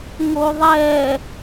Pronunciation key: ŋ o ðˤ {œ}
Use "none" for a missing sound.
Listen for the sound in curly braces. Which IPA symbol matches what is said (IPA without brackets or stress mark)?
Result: ɛ